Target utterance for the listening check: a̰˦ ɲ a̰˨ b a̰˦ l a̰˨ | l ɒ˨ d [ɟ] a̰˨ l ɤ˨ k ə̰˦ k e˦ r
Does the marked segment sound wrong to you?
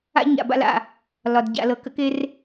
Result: no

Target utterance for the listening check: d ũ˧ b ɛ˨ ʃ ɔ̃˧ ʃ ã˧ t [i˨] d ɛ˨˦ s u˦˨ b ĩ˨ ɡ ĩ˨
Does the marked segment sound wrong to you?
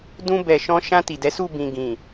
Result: no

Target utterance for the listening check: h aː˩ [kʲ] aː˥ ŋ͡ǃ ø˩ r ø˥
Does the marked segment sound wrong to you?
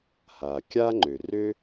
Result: no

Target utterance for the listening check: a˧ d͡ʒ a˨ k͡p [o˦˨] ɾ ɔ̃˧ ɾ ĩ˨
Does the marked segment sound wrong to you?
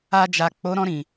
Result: yes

